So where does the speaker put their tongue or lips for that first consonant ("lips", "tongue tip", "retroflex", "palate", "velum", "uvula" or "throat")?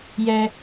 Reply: palate